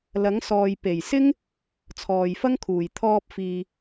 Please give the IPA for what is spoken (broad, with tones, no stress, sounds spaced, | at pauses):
l ɐ˨˥ ŋ s ɔː˨ j p e˨˩ j s ɪ˥ ŋ | t͡sʰ ɔː˨ j f ɐ˥ ŋ kʰ uː˨˩ j t̪ʰ ɔː˧ p̚ f iː˨